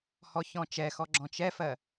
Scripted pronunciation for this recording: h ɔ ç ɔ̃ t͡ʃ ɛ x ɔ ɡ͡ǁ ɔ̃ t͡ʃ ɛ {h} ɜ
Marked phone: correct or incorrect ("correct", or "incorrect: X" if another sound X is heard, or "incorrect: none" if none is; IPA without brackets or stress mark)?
incorrect: f